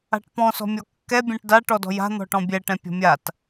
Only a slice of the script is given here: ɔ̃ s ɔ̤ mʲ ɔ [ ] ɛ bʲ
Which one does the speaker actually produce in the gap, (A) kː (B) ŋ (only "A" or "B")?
A